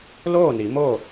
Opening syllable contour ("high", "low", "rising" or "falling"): falling